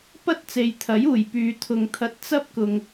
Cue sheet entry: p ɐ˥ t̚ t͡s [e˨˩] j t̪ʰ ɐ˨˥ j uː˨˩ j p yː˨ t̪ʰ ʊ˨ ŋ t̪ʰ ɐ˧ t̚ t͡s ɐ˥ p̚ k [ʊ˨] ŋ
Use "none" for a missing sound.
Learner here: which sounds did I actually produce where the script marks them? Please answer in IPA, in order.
e˨, ʊ˨

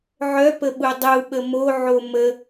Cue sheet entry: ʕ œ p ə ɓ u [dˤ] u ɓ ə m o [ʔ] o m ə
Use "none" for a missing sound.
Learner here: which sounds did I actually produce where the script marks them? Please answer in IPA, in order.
dˤ, ʕ

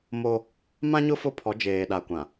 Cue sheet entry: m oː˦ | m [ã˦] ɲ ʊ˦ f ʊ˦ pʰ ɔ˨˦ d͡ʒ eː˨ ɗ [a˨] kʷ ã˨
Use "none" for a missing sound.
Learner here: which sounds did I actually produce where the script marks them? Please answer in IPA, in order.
ã˦, a˨

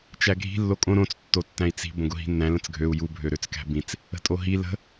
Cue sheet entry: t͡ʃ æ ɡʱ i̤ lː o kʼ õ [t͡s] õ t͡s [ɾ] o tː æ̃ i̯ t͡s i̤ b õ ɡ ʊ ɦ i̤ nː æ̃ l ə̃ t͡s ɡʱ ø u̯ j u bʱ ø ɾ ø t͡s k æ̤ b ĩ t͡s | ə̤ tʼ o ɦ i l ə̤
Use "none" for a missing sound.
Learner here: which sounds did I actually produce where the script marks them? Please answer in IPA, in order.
ɾ, tː

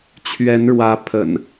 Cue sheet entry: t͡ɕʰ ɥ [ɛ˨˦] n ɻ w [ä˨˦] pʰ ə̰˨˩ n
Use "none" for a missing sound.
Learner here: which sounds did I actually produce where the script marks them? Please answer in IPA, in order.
ɛ˨˦, ä˨˦

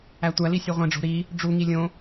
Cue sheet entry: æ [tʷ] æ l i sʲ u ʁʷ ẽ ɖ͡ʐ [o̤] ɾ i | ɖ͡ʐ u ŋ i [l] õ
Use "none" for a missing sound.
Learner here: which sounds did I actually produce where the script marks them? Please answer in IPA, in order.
tʷ, o̤, lʲ

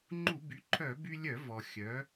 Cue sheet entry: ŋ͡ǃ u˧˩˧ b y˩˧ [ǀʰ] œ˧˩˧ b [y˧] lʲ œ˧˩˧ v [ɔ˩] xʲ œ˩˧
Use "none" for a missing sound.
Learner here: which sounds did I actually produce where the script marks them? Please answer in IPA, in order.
ǃʰ, y˧, ɔ˩

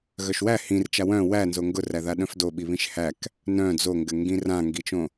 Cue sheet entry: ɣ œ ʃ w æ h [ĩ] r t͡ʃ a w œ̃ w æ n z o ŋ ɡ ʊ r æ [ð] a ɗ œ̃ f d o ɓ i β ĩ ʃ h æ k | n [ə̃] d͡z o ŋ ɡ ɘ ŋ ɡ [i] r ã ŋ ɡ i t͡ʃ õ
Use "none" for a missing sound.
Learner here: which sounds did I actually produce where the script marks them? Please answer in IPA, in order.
ĩ, ð, œ̃, ĩ

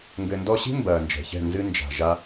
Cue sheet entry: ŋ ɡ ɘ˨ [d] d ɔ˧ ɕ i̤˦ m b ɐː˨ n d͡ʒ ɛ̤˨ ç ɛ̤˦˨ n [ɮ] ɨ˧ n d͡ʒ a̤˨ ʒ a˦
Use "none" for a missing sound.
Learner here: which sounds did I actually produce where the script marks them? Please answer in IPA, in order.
n, z

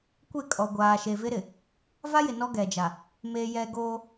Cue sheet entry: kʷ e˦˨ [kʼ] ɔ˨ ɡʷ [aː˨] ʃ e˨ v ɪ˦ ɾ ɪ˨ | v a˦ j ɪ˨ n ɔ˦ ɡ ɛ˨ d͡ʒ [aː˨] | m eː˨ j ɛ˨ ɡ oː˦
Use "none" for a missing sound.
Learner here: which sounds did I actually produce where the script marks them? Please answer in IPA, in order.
kʼ, aː˨, a˨

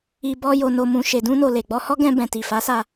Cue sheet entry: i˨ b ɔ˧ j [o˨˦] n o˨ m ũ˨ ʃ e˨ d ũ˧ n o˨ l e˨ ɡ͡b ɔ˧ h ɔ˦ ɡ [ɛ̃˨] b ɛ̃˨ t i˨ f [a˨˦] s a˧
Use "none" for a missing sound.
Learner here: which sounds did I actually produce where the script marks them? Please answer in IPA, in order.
o˨, ɛ̃˧, a˨˦

